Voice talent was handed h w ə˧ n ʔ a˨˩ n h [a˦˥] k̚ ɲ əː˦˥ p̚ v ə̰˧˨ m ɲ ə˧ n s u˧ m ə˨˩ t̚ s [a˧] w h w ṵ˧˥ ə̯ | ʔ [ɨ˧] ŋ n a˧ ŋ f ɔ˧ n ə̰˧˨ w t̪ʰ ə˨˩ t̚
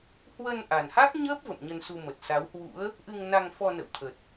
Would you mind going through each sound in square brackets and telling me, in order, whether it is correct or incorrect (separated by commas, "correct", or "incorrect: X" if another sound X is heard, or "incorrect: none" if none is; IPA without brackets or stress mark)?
correct, incorrect: a˨˦, correct